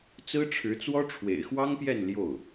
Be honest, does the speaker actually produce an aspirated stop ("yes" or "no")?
yes